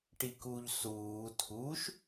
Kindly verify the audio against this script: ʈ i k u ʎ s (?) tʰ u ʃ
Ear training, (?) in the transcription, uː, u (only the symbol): uː